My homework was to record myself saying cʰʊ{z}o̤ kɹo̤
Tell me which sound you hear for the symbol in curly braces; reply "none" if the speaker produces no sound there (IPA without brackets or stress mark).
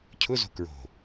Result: z